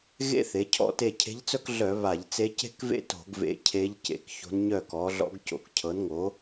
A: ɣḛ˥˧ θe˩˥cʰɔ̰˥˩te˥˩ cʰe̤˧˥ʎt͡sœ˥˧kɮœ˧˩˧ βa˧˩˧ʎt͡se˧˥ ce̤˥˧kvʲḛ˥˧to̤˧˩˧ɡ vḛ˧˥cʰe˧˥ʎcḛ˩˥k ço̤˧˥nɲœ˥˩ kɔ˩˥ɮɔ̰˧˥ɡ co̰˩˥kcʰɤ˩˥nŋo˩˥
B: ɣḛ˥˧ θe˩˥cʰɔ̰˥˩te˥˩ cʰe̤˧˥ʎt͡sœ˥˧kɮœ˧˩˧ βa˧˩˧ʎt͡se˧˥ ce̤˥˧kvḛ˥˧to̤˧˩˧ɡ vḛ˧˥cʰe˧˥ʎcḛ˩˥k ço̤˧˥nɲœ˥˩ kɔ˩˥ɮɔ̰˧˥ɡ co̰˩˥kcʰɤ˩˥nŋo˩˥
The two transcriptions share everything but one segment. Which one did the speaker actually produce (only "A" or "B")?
B